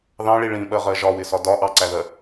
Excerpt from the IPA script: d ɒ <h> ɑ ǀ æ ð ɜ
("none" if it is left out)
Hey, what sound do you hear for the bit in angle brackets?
ʔ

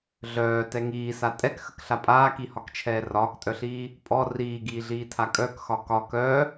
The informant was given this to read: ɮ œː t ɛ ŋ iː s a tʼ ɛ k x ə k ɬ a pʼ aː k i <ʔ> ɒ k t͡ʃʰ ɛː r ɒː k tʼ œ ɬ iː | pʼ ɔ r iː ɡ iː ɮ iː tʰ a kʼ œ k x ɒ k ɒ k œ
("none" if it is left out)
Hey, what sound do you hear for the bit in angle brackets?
h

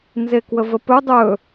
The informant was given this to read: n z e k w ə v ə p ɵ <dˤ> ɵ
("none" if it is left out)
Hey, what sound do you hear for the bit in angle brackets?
dˤ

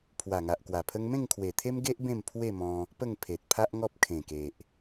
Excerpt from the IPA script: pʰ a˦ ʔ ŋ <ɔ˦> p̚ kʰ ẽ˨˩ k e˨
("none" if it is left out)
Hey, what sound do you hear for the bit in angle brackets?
ɔ˦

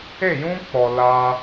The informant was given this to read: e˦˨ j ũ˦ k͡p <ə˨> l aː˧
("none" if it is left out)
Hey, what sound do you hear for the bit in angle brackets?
ɔ˨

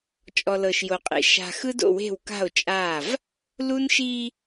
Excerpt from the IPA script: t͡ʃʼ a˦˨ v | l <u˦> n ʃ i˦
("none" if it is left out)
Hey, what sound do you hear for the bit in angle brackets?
u˦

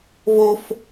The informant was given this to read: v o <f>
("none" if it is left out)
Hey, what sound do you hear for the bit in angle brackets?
f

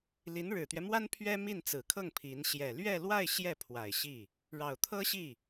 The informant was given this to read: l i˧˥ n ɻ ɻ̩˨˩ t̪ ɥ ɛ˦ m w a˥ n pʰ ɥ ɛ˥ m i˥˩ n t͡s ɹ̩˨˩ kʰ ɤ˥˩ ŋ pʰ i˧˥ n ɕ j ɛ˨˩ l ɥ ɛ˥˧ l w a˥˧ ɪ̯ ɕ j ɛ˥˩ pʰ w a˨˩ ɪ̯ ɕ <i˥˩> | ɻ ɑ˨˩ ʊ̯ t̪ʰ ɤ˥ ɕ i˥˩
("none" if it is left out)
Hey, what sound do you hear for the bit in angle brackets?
i˥˩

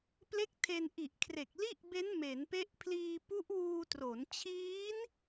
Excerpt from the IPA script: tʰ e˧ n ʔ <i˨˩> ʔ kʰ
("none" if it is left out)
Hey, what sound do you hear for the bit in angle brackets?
i˨˩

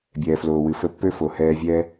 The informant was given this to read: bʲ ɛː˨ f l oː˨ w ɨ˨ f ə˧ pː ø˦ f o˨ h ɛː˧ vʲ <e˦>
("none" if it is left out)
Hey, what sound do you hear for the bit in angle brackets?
ɛ˦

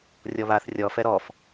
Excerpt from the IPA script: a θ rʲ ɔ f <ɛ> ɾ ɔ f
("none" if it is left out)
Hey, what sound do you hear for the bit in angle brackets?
ɛ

